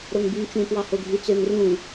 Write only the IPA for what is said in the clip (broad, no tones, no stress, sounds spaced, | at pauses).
ɾ o ŋ b y ŋ t͡ʃ ũ p w ɑ h o ɡʱ y t͡s ø ŋ r ũ